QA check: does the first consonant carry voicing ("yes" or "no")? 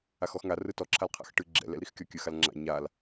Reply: no